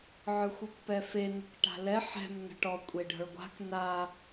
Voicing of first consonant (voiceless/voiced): voiced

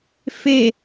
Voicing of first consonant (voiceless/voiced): voiceless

